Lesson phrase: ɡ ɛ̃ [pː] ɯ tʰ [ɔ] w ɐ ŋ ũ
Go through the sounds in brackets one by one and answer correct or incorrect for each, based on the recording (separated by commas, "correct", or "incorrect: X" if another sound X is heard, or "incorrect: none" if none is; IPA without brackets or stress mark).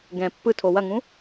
correct, incorrect: o